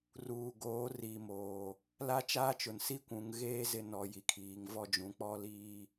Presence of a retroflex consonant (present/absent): absent